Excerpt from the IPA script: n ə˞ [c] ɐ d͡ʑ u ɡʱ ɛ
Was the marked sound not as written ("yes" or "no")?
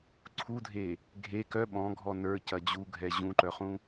no